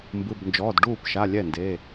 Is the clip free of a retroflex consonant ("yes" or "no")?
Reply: no